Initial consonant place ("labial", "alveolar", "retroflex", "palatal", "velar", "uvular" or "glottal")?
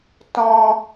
alveolar